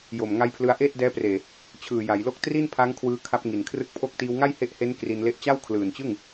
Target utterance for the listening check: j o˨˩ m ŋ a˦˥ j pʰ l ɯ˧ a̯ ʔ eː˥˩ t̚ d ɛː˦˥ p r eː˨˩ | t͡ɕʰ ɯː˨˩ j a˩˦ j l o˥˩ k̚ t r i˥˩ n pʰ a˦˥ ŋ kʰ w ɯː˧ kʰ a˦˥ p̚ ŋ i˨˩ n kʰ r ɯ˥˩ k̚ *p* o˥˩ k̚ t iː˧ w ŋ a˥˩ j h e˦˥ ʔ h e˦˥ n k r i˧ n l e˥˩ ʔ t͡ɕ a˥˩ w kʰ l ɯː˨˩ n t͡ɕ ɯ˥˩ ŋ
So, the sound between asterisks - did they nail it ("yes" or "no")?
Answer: no